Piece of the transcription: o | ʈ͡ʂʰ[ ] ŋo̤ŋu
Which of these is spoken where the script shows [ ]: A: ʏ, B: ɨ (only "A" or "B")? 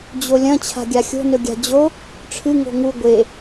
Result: B